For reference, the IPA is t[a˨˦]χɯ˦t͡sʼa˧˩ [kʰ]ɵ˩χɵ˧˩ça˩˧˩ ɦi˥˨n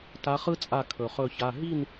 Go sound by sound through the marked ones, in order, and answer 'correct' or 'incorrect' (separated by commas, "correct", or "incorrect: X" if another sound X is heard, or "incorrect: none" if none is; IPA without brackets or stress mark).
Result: correct, correct